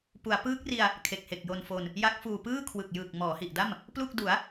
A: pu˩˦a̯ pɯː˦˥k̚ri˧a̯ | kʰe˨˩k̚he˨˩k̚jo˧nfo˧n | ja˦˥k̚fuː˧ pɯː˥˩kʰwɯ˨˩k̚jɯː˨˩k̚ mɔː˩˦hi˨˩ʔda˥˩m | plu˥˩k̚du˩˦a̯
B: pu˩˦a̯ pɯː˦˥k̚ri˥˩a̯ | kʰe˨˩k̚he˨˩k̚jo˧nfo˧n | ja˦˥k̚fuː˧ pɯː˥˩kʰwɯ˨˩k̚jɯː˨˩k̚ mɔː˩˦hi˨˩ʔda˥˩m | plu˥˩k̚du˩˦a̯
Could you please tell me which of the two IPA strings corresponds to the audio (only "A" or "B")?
A